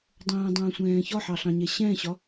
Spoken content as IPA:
dˤə̃ːdˤə̃ːsʷɛ̃ː çɒħɑɬɑ̃ɲɛ ɕɛ̃ɕɒ

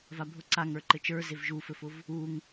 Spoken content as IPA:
vabʱʊ ǀaŋə˞ ǃɘt͡ʃə˞zev ʒufɘfʊv | uŋ

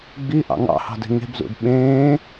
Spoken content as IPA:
ɡ͡bi ʔɑ̰ŋɑ̰hɑ̤de̤ ŋe̤bzṵd ɓẽː

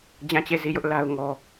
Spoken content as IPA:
d͡ʑã˦˨t͡ɕe˦˨zi˦˨jʊ˦ʔ la˦ʊ̯ŋɔ˦

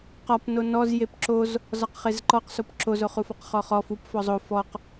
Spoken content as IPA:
qɒpno nɔzjep ǁoz | zɒqχezǃɔqsop ǁozoχufɔq χɔχɔf up fɔzˤo fɔq

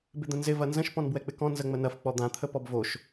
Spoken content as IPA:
bɪd̪ə̃nzɪ vɐnzə̃ʃ pɔ̃nbwɛk͡pɪkɔ̃ nzəŋ͡mənɐf k͡pɔd̪ã t̪ʰəpɔbvoʃ

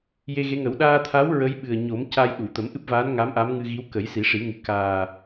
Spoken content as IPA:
je˧ɣe˧˥ŋə˨˩˦w ɗaː˧t̪ʰa˧˥w ɹə˧˥jɓɨ˨˩ə̯ɲo˨˩˦m ca˧jɗu˨˩˨ t̪ə˨˩˦mʔɨ˦˥p̚vaː˧˥n ŋa˧˥mʔa˧˥mŋɨ˧ɣi˧˥w kə˨˩˦jsi˨˩˦ʂi˨˩˦ŋɨ˨˩˦ kaː˨˩

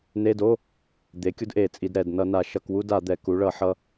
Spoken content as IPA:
ne˧˥˧do˧˥˧ | d̪e˩˥kʲu˧dʔe˧˩˧ t͡sʼi˩˧d ɾɛ˧˩d nʌ˧˩˧ na˩˧ ʃʌ˧˩˧kwu˧˥˧da˧˩˧d̪ɛ˩˧ ku˩˥ɭʌ˧˩˧ħʌ˧

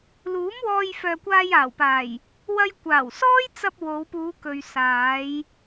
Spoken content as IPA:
luː˨˥mwɔː˧j fœː˨kʷaː˧jaː˨˩wpaː˨˩j | wɐ˧jkʷaː˨˩wsɔː˥jt͡sɐ˧p̚ wo˨˧wpuː˨˧kɵ˨ɥ saː˨˧j

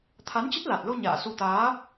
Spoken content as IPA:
t̪ʰa˨˦nt͡ɕə˦˥t̚la˨˩t̚lo˧ ɲa̰ː˧˨su˧ t̪aː˨˦

